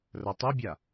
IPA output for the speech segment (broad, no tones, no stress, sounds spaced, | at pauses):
r ɐ tˤ ɵ bʲ a